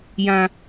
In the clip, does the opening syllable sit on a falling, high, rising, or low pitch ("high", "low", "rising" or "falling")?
high